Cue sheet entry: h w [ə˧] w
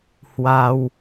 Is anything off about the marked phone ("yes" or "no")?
yes